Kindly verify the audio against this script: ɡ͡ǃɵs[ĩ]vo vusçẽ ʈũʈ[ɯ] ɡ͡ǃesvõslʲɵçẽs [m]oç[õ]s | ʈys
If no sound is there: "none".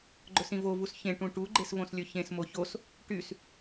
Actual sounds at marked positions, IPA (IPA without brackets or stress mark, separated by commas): ĩ, u, m, o